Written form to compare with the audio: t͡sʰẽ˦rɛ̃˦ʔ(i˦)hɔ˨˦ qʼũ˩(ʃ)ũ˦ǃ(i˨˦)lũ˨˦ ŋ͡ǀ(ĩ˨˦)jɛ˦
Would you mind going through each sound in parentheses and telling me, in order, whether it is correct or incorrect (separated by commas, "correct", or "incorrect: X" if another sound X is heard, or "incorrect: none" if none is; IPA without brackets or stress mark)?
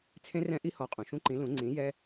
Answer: correct, correct, incorrect: ĩ˨˦, correct